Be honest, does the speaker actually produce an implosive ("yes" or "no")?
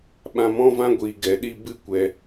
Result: yes